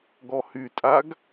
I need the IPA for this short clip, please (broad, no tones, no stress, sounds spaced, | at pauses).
ɡ ɔ h y tʼ a ɡ